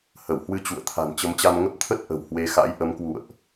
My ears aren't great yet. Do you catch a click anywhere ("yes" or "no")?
no